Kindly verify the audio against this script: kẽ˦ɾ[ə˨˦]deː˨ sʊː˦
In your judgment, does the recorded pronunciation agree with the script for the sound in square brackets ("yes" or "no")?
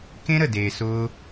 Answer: no